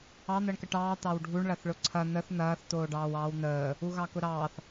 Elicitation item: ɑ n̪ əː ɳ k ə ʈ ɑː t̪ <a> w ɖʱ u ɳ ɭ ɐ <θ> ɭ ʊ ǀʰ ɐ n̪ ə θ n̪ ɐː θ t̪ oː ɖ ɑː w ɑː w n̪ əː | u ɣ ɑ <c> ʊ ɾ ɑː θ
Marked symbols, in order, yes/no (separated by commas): no, yes, no